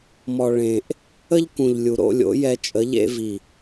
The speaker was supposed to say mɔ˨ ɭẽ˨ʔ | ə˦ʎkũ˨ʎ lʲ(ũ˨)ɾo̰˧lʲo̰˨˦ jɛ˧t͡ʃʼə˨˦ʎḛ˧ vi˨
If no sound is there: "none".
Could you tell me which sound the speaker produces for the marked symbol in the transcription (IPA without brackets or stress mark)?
u˨